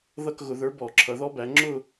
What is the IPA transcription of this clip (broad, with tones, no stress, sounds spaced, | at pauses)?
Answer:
ð ʌ˥˧ k ɣ ʊ˧˩˧ ð ə˞˨˥ b ɔ˧˩˧ ǁʰ ʌ˩˧ ð ɔ˦˥ b æ˩˧ ŋ͡ǁ ʊ˥˧